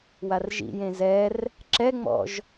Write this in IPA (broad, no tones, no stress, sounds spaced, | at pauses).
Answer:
w a r ʒ ḭ j ẽ z ɛ r | ǁ ɛ ŋ͡m ɔ̰ ʒ